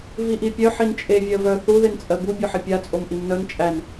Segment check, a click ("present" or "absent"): absent